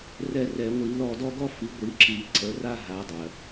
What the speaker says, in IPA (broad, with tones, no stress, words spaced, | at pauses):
rɛ˦˨rɛ˧˩˧ŋʷi˧˩˧ lɔ˦˨dɔ˥ɡɔ˥ fi˨˦ɡʷi˨˦ǁi˧˩˧ ǀə˨˦ra˥ ɦa˨˦dˤɜ˩